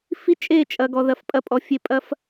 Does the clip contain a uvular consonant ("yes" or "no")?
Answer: no